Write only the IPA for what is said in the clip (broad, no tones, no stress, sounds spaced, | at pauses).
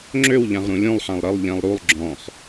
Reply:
ŋ͡ǁ ø w ʎ ã ʁ ɾ ũ lʲ ũ lˠ ħ ã lˠ ɾ ə lˠ ʎ ɛ̃ lˠ ɾ u lˠ ɡ͡ǁ ɔ̃ χ